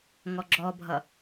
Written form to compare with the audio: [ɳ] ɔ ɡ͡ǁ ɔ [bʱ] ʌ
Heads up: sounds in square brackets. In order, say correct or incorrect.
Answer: incorrect: ŋ, correct

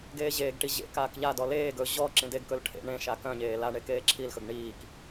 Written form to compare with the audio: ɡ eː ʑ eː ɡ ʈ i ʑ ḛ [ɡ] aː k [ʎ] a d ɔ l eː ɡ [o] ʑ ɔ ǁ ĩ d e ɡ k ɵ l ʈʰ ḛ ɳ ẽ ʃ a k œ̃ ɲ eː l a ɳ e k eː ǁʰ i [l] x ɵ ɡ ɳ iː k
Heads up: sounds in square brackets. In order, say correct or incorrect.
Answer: incorrect: k, correct, incorrect: ɵ, correct

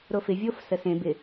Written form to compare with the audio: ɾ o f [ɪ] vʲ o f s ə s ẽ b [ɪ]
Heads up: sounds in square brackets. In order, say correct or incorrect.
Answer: correct, correct

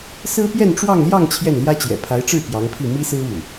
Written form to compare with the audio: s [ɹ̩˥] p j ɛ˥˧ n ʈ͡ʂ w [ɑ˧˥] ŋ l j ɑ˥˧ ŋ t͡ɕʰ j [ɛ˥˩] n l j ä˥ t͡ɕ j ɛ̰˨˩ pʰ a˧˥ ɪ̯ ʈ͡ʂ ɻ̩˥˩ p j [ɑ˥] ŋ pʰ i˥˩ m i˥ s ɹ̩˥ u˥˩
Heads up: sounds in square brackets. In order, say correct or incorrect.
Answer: correct, incorrect: ɑ˥˧, correct, incorrect: ɑ˧˥

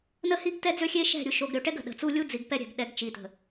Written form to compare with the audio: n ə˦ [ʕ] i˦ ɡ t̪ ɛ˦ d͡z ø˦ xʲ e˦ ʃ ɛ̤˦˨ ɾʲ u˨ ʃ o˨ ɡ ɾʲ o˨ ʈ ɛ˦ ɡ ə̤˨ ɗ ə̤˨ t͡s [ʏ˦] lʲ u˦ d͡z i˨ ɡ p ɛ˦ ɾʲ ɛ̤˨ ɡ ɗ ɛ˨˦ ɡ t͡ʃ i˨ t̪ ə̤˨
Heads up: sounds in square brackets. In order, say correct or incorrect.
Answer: incorrect: h, incorrect: u˦

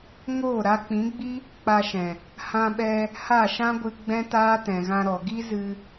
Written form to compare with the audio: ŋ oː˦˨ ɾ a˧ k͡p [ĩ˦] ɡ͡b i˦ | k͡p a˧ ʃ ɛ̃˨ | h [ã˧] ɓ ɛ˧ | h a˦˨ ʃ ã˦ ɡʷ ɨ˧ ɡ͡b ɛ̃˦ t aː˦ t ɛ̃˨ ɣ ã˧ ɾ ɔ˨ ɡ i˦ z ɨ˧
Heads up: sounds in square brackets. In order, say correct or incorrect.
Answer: incorrect: ĩ˨˦, correct

